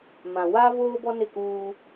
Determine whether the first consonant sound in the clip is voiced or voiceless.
voiced